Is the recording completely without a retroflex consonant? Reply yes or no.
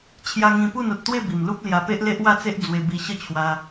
yes